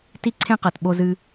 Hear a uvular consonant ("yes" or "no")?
yes